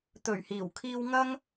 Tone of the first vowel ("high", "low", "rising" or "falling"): low